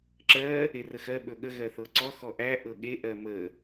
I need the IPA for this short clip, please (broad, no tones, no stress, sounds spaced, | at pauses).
ǁ ɜ | e r ə x ɜ ɓ ɵ ɠ ə ɣ ɜ θ ɤ ǀ ɔ x ɔ ʔ æ ʔ ɤ ɠ e ʔ ɜ m ə